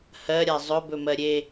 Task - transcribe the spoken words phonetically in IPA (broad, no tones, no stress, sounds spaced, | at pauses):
h ɜ ɾʲ a zˤ ɵ b ɵ m ɜ ɾʲ e